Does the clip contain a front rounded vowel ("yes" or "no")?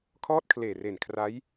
no